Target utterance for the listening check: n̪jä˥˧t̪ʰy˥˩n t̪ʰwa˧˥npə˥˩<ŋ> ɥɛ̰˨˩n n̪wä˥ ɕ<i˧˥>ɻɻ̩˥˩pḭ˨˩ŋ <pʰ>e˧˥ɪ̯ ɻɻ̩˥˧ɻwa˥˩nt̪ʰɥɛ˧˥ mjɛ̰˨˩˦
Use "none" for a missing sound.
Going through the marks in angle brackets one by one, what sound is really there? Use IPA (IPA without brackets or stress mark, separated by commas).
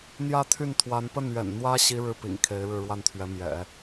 n, i˥, kʰ